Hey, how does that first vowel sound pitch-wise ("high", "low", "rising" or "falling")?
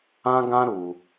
high